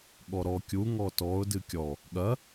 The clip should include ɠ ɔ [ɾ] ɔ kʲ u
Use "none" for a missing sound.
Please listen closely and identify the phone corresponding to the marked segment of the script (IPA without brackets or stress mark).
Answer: ɾ